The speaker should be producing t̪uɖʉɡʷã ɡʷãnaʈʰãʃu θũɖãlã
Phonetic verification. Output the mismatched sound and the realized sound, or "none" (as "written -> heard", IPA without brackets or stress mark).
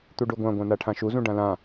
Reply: θ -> z